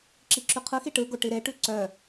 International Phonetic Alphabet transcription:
ǁiǁʉqʰɯxi ʈɯɡo ʈiɾeʈʉ ǀœ

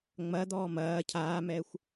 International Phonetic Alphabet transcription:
ŋ͡mɐd̪ɔː mɐː cʰaːmɛːxʷ

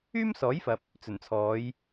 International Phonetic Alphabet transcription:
yː˥msɔː˨˥jfɐ˨p̚ | t͡sɵ˨˩nt͡sʰɔː˨˧j

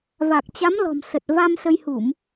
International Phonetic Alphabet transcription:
va˨˩k̚t͡ɕa˨˦mlɔ̤˨˩m sə˨˩t̚va˧m sə˧jhu˧˩˨m

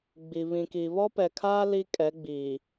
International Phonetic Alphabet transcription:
ɡ͡bi˨ βĩ˨ki˨ βɔ˦pɛ˨kʰaː˦ li˦ kʼɛ˨˦ɡ͡biː˨

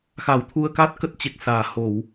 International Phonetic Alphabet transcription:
xa˨˩wt̪ʰu˧ə̯kaː˦˥t̚ kə˦˥t̚t͡ɕe˨˩k̚saː˨˩ ho˧˩˨w

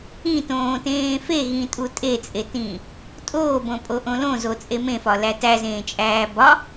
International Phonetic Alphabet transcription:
ĩtõːtẽː feɣĩtʼu tʼet͡sʼetĩː | tʼoːbõpʼoʔõ lõzot͡sʼe mẽfɒlæ tæzẽːt͡ʃʼæː bɒ

